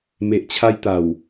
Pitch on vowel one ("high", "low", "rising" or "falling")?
low